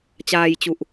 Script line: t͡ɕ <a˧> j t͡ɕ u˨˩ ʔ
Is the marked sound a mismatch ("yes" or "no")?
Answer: yes